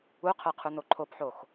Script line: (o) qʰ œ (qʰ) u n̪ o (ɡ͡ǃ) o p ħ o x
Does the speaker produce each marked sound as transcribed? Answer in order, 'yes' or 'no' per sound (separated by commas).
no, yes, no